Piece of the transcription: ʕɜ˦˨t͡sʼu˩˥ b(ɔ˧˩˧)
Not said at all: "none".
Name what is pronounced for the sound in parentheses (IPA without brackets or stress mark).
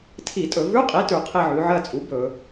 ɵ˧˩˧